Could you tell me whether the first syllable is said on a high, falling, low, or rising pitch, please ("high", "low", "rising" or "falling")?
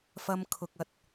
high